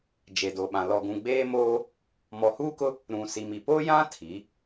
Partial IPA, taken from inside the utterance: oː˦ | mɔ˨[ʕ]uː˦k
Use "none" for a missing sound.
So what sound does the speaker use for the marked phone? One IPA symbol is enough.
h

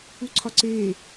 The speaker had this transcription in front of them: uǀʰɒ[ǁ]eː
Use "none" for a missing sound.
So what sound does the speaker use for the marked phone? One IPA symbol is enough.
ǀ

